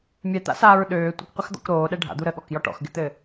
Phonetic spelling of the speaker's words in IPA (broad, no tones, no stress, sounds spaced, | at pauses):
mʲ ɛ t̪ a̰ s aː ɹ ɗ øː tʷ ɪ k qʷ ɘ x d̪ ɔ̰ k ɾ oː ɗ ɛ ɖʱ a̰ d̪ u ɾ ə ɠ ɔ k j ɔ ʈ ɔ̰ x ɡ ɪ t̪ ɘ